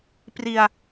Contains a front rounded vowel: no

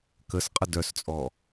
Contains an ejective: yes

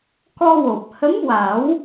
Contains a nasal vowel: no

